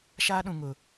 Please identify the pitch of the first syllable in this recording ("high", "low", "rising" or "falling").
high